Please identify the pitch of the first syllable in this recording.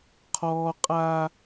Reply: high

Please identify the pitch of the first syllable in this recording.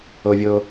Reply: low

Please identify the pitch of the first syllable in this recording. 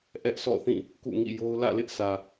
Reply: high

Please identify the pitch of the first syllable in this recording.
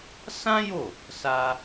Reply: high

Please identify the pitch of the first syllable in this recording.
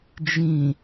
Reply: low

